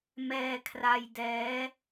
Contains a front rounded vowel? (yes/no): no